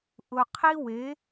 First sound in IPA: ʔ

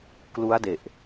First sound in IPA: k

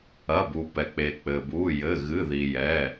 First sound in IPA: ɐ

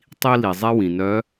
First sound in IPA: tˤ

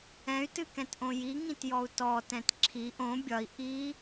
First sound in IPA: ɛ̃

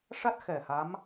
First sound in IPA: ʂ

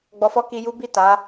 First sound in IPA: ɡ͡b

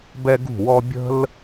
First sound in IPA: b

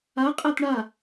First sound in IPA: a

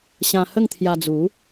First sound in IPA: ɕ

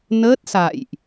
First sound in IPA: n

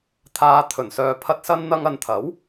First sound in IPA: t̪ʰ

